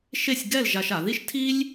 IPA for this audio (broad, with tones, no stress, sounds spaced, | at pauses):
ʃ e˥˧ sʲ ɡ ɛ˥˧ l ʒ a˧ ʃ a˩˧ ð i˥ ʃ tʰ i˥ lʲ